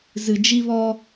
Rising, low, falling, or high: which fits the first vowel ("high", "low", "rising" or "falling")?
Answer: low